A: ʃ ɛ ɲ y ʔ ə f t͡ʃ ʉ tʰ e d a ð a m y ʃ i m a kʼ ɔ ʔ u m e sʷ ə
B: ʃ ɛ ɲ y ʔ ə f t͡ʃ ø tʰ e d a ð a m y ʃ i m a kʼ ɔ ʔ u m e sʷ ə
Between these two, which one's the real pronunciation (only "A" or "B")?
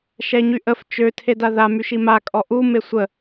B